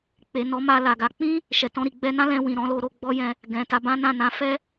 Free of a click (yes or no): yes